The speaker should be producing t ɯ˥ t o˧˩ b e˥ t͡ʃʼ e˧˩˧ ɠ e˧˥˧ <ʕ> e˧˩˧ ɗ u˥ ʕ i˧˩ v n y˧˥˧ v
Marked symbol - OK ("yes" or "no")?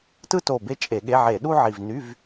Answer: yes